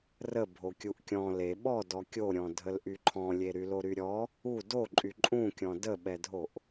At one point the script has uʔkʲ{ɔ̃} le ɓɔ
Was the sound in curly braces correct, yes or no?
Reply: yes